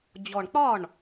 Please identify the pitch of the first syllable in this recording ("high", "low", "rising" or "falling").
low